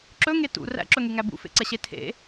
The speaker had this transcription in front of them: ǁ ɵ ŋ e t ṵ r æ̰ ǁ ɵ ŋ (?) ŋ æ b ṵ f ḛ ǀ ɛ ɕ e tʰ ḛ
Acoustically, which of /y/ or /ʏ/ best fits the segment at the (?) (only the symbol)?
y